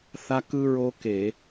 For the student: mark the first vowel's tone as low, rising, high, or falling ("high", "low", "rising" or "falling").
high